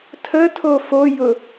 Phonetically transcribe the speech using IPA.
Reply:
tʰ ə tʰ o f o j ʊ

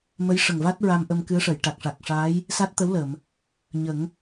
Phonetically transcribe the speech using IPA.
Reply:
m ə˧˥ j ʂ ə˨˩ ŋ v a˦˥ t̚ ɹ a˧ m ʔ ə˧ m k ɨ˧˥ ə̯ ʂ ə˨˩˨ j ʈ a˨˩ k̚ ʂ a˨˩ k̚ ʂ aː˧˥ j | s a˦˥ t̚ t̪ ə˧˥ w l ə˨˩˨ m | ɲ ə˨˩˦ ŋ

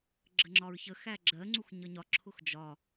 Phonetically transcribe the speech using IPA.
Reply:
ɡ͡ǁ ə ŋ͡ǁ ɒ ɹ ç ə x æ ɡ͡ǁ ɜ ŋ͡ǀ u x ɲ ʌ ɲ ɒ ǁʰ ʊ x d͡ʒ ɒ

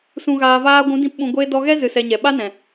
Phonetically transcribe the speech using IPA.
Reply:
s ũ˨ ɣ aː˨ v aː˧ ɡʷ ũ˨˦ d ĩ˧ p ɓ ũ˨ ɡʷ eː˧ d ɔ˧ ɣ ɛ˦ z ɨ˧ s ɛ˧ ɲ ɛ˨ ɓ a˦ n ɛ̃˨

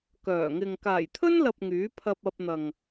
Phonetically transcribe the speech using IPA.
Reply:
k œː˨˩ ŋ ɪ˨ ŋ k aː˨˩ j t̪ʰ ɵ˥ n l ɐ˨ p̚ ŋ yː˨˥ pʰ ɐ˧ p̚ ɐ˧ p̚ n̪ ɐ˨ ŋ

